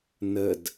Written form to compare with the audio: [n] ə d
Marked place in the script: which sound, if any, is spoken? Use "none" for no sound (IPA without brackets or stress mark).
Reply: n